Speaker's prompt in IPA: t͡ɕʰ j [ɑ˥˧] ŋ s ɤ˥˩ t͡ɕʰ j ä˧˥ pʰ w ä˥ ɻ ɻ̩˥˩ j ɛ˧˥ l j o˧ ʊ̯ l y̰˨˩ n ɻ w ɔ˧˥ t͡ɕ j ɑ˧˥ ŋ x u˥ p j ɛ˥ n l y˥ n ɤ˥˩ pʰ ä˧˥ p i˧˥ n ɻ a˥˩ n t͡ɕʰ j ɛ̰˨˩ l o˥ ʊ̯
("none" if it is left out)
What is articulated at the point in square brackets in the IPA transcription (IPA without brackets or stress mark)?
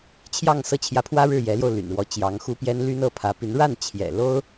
ɑ˥˧